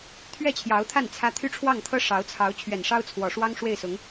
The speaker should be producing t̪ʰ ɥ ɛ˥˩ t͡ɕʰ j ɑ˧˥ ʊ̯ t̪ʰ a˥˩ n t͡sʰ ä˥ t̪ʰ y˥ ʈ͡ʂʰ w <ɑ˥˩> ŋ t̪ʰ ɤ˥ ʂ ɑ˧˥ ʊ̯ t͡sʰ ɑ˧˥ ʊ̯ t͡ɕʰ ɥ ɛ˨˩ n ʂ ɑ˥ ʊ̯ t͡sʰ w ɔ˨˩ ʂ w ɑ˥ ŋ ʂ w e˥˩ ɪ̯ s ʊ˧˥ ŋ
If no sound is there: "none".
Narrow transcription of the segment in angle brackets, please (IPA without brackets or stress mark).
ɑ˥˩